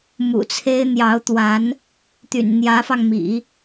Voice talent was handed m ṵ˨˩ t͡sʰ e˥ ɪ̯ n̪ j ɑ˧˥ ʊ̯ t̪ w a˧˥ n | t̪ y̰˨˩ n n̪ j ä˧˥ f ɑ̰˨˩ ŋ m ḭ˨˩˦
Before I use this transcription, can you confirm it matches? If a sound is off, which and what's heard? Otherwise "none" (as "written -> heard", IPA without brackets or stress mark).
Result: ɑ̰˨˩ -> ɑ˧